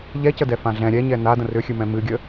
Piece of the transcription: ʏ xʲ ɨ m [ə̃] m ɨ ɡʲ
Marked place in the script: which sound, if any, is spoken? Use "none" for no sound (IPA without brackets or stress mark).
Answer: ɛ̃